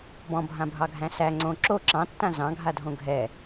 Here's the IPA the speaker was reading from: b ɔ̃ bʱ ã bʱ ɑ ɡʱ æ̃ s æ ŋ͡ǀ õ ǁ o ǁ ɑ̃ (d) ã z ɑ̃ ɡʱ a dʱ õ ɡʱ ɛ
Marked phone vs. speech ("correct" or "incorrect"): incorrect